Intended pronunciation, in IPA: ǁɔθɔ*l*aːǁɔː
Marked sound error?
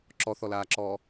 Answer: no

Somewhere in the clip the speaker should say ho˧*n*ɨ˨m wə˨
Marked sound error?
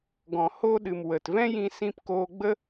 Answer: yes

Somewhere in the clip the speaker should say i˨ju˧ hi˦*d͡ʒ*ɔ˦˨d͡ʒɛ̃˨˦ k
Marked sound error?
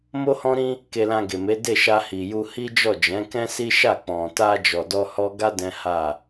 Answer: no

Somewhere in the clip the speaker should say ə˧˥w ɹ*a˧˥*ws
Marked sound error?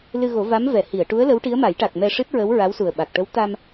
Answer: no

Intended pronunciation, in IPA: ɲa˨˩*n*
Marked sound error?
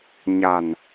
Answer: no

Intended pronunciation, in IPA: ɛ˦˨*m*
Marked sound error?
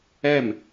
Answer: no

